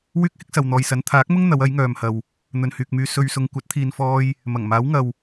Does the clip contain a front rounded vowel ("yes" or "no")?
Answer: yes